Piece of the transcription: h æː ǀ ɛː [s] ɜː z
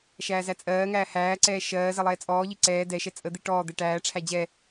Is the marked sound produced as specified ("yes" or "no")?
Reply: no